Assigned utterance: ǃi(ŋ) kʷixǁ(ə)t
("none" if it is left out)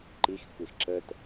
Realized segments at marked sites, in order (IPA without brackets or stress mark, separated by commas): x, ə